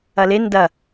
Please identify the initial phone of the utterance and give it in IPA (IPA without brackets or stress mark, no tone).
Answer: ɐ